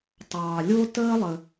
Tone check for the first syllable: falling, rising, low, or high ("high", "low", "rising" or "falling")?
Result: low